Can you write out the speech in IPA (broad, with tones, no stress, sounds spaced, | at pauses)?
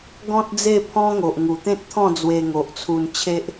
ɡ ɔ̃˦ t̚ d͡z e˥˧ pʰ ɔ̃˦ ŋ o˨ ʔ ŋ u˨˩ t̪ ẽ˦ t̚ t̪ʰ ɔ̃˥˧ d͡z w e˧ ŋ o˨ ʔ t͡sʰ u˧ n t͡ɕʰ e˦ ʔ